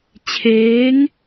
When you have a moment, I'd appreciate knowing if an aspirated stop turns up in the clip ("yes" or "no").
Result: yes